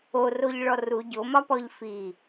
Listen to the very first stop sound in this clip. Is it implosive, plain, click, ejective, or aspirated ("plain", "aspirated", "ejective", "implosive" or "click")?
plain